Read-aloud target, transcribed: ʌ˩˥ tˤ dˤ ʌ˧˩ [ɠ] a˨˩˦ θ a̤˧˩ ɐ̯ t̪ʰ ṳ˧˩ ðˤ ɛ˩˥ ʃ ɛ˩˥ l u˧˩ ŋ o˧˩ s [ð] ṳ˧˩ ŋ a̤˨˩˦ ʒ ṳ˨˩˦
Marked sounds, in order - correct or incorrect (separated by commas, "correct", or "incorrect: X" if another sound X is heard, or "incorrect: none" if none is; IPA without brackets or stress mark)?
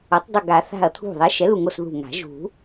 incorrect: ɡ, correct